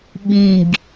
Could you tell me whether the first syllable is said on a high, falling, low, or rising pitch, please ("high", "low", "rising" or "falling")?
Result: low